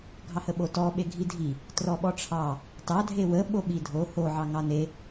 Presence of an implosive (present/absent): present